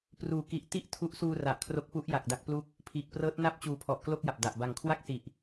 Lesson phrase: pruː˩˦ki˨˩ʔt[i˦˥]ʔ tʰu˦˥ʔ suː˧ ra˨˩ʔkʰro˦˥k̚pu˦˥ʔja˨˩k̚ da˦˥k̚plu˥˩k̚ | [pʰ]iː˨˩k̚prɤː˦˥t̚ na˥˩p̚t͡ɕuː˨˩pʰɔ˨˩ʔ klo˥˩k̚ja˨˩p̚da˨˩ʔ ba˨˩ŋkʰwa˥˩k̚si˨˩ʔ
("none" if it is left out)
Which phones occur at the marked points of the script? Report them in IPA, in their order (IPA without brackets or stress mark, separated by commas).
i˥˩, pʰ